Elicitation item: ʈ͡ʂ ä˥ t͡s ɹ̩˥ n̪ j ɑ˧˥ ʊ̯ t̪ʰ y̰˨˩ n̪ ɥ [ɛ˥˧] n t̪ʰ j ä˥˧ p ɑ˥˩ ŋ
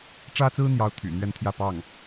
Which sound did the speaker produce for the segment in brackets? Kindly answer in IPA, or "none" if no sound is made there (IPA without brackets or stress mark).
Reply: ɛ˥˧